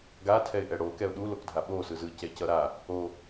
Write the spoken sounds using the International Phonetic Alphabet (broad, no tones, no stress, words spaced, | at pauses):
ɡatʰɛɪ̯ʔɛ ɽokɛʊ̯ ɗulokdʱa ɓosɯ zɯcɛcʌ ɾa | o